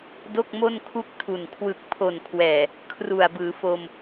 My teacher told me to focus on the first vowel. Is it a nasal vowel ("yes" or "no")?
no